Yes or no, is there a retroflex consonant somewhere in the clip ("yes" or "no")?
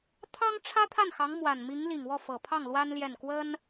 yes